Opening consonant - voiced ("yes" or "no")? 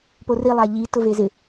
no